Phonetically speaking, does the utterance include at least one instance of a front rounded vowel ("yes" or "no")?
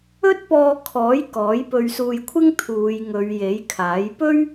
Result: no